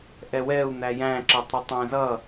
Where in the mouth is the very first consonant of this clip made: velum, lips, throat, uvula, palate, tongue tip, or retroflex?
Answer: throat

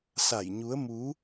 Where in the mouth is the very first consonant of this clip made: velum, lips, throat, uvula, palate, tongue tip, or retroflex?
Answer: tongue tip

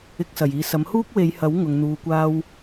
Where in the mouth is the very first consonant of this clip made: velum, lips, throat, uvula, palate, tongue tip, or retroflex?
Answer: velum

